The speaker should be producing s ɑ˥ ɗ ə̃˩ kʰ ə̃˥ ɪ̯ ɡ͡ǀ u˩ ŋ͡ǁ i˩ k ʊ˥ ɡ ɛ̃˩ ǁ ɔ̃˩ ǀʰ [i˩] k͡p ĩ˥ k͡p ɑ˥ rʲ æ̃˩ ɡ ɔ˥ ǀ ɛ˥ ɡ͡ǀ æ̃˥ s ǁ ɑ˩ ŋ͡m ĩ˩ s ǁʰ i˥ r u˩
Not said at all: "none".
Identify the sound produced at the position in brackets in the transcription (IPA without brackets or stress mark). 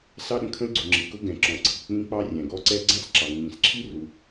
i˩